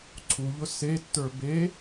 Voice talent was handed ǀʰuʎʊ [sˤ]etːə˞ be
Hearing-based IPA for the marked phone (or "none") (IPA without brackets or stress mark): s